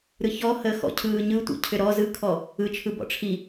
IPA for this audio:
ɾ ɯ ç ɔ h əː x ɔ̰ cʰ ɯː ɲ ɯ tʷ ḭ cʰ ʏ ɾ ɔ z ɯ kʰ ɔ | ɯ t͡ʃʰ ɯ b ɔ̰ ʈ͡ʂʰ i

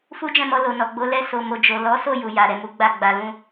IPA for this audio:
f u˦ d͡ʒ ɛ̃˦˨ m ɔ˧ l o˨ n ɔ˨ ɡ͡b o˨˦ l ɛ˧ s o˧ m o˧ d͡ʒ o˨ l ɔ˨˦ s o˦˨ j u˨ j a˨ ɾ ɛ˨ m u˨˦ ɡ͡b a˦˨ ɡ͡b a˧ l ũ˦

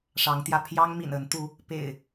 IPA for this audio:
ʂ ɑ˨˦ ŋ t̪ j ä˧ pʰ j ɑ˦ ŋ m ḭ˨˩ n ə˨˦ n t̪ u˨˦ | p ḛ˨˩ ɪ̯

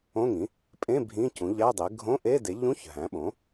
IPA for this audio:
õ˧˥˧ ŋ ĩ˩˥ | pʼ ẽ˧˥˧ bʱ ĩ˧˥˧ c ũ˩˥ ʎ æ˧˥˧ dˤ e˩˥ ɡʱ õ˧˥˧ ʔ e˧˥˧ d e˩˥ ʎ ũ˧˥˧ ç ɦ æ̃˩˥ ɓ õ˩˥

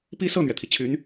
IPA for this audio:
p i˥ s ɤ˥˩ n̪ ɥ ɛ˩ t̪ʰ i˩ t͡ɕʰ y˧˥ n

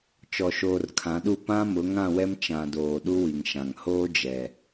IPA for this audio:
t͡ʃ ɔ˨ ʃ oː˨ r kʰ ã˨˦ ɗ u˦˨ p ã˦ m ʊ˨˦ ŋ ã˦˨ w ɛ˦ m t͡ʃ ã˨ d oː˨ ɗ u˦ w i˨ ŋ ʃ ã˨ ŋ h oː˦ d͡ʒ ɛ˨

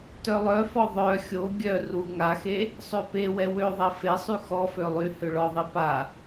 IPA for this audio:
t œ lˠ œ f ɔ ðˤ œ xʲ o ɡʲ œ r u ŋ a x e | sˤ ø p e w ɛ w ø ðˤ ɛ f e sˤ y x ɔ f ø lˠ y h ø ɭ ɔ ðˤ i p a

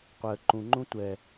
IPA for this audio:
qʷ ɛ ə̯ ǃ ũ ŋ͡ǃ ũ tʷ ɛ

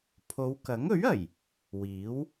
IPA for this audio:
pʰ o˨˧ w k ɐ˨˥ ŋ ɵ˨˥ ɥ ɐ˨˩ j | w iː˨˥ w

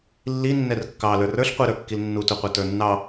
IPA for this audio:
lː i nː ɛ r kː ɑ l ə˞ r ə˞ ɬ qʷ i ɾ ə˞ kː i l nː u t u qʷ ə˞ t ə˞ nː ɑ

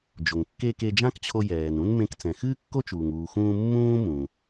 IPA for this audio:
d͡ʒ o˩ ŋ kː e˧ k e˧ d͡ʒ ã˥ k t͡ɕʰ o˧ j ɛː˩ n ũ˥ n m ẽ˧ k t͡s ɛ̃˩ x ɨː˥ kː o˥ t͡ʃ uː˩ ŋ uː˩ x ũː˧ mː ũː˥ m ũ˩

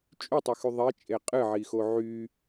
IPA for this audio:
t͡ʃʼ y tˤ ɨ x y ðˤ e t͡ʃʼ e qʼ ɨ ʕ i x o ʕ y

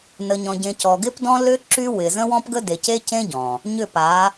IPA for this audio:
n ə˨ ɲ ɔ̃˨ ɟ ẽ˨ c ɔ˨ ɡ ɪ˦ p d ɔ̃˦ l ʏ˦ ǁ y˦ w ɪ˨ z ə̃˦ w ɔ̃˦ p ɡ ə˦ d e˨ c e˦ c ẽ˦ ɟ ɔ̃˨ | ɲ ʏ˦˨ p a˨˦

